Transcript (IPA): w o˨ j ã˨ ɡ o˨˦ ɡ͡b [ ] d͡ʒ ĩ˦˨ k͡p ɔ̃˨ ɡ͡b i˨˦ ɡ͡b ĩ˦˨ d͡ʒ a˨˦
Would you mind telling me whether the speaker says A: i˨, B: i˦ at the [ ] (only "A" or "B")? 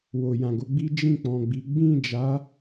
B